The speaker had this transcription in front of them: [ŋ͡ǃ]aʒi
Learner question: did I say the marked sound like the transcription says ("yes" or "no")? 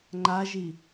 yes